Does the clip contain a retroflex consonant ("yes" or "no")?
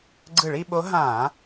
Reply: yes